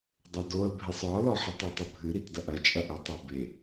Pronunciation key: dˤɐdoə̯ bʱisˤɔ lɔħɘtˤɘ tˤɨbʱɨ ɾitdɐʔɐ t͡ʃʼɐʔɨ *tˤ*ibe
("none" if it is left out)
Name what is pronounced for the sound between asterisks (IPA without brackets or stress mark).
tˤ